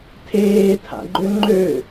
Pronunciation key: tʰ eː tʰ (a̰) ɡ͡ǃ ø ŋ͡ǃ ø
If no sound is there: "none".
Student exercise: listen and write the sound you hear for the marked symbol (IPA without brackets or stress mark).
a̰